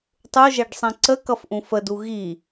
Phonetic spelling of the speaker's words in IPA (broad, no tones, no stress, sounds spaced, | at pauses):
tˤ u ʒ ɛ ɖ sˤ ɛ̃ ǀ ə k ʌ f ʔ ũ f ə d u ɣ i